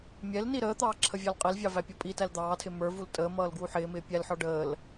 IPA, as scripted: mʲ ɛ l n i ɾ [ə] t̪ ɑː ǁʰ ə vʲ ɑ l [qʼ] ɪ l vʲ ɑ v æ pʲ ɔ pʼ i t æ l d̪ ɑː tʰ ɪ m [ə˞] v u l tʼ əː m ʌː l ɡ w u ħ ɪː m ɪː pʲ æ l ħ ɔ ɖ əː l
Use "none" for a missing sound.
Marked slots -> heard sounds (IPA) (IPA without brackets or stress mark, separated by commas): əː, qʼ, ə˞